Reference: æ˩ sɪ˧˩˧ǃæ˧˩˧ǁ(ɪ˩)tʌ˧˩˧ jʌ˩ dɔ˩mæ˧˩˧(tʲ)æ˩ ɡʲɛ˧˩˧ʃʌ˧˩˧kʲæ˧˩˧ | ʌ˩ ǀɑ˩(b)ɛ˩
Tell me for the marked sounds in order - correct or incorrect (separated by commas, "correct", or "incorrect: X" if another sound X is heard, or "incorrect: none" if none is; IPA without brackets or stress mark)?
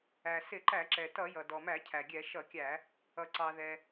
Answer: incorrect: ɛ˩, incorrect: cʰ, incorrect: ð